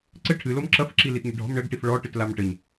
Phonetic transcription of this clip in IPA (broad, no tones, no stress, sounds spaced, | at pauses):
ǀ ɘ ʈʰ ɨ l o m ǁ ɐ f ǁ i l i t ɲ ɘ ɖʱ ɔ̤ m ɳ ɘ ɡ ʈ i f ɭ ɔ ʈ ɨ t l a m ʈ ɘ ɲ